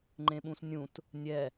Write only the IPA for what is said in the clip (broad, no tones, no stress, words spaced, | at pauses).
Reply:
ŋ͡ǃẽɓũsnʲũt | nʲɛ